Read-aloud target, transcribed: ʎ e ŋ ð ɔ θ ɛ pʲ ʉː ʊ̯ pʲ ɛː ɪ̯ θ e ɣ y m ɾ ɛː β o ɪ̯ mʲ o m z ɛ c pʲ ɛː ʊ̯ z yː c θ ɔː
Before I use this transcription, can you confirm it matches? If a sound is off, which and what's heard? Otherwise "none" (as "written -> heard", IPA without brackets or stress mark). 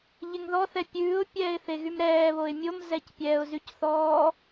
yː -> y